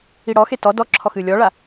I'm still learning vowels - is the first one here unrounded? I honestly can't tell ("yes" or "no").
yes